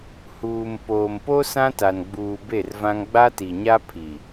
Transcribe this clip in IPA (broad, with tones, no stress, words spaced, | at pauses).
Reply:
huː˨m poː˨mpo˦ sã˦ta˨n ɡ͡buː˨ be˦˨rvã˦ŋ ɡ͡ba˦ti˨ɲa˦ pʰi˨